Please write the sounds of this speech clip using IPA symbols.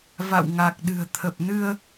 va̰˧˨wŋa˨˩k̚ ɗɨ̤˨˩ə̯t̪ʰə˨˩p̚nɨ˧ə̯

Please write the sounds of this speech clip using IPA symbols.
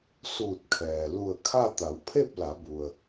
suː˧˩t̚kʰɛː˩ lu˧˩ə̯kʰa˥˨ t̪a˩˧wpʰe˥˨p̚la˩˧bu˩ə̯

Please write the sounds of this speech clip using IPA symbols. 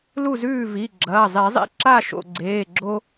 lu˥˨zʉː˥˨vi˩˧˩ɡ͡ǁɐː˩˧˩ zˤe˨˩˦zˤḛ˦ ǁa˥˨ ʃo̰˧˩ɡ͡ǀeː˩˧˩ɡ͡ǁo˦

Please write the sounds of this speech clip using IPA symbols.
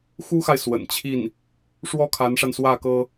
xu˥xa˨ɪ̯ swə̰˨˩n t͡ɕʰi˥˩n | ʂwɔ˥kʰa˧˥nʂa˧nswä˥˩ kɤ˥

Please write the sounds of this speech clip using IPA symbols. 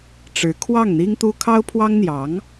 ʈ͡ʂɻ̩˧˥ kʰwɑ˥˩ŋn̪i˥ŋt̪u˥ kʰɑ˥ʊ̯pʰwɑ˥ŋn̪jɑ˧˥ŋ

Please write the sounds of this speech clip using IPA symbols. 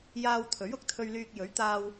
jaː˧w t̪ʰɵ˨˥ɥʊ˨˥k̚t̪ʰɵ˧ɥlyː˧k̚ jɵ˨˥ɥt̪aː˧w

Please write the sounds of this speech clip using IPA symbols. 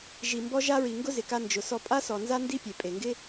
ʒi˨mbɔ˧ʒa˧ɹi˨ ŋɡʊ˦zɪ˨ka˧ nd͡ʒʊ˨ sɔ˧pʼa˦sɔ˨ nza˦ ndi˦pʲe˨ pʼe˨ŋɡɪ˦

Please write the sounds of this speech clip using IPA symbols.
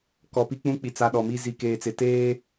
kɔ˨pi˦k͡pũ˦k͡pi˨ t͡sa˨ ɗɔ˨mi˦ zi˨keː˨t͡sɪ˨teː˦

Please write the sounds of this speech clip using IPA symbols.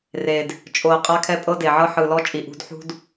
re˨d | t͡ʃʼo˨ə̯ qʼa˦kʰɛ˦pʼɤ˦ de˨ʕɤ˦ ħɯ˨lɔ˦ t͡ʃʼi˨ʔṳ˦d ħṳ˦d

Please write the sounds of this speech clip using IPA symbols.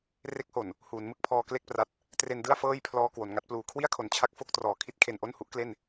re˦˥k̚ho˨˩n | huː˩˦nmɯ˥˩k̚pʰɔː˧ kle˥˩k̚pra˦˥t̚ | tre˧ndɯ˥˩a̯ fɤː˥˩jpʰlɔː˧ kwo˩˦nŋa˦˥t̚pluː˧ kʰwi˥˩a̯kʰo˨˩nt͡ɕʰa˦˥k̚ fo˦˥k̚trɔː˨˩ kʰi˦˥t̚ kʰe˨˩nʔo˥˩nhu˦˥ʔkle˥˩n

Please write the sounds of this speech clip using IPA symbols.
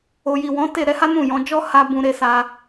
o˨ji˨wɔ̃˨˦ te˦˨ ɾɛ˨˦ha˦ nũ˦˨jɔ̃˨˦ d͡ʒɔ˦ ha˦bũ˧ ɾe˦sa˦

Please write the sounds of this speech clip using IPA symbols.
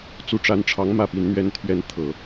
t͡su˧˥ʈ͡ʂa˧˥nʈ͡ʂʰɑ˧˥ŋ mä˥˩pi˧˥nn̪ɥɛ˥nt̪ʰɥɛ˥n t̪ʰɤ˨˩˦

